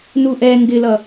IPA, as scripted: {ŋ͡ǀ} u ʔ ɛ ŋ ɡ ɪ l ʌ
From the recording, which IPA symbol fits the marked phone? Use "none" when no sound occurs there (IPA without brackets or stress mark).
n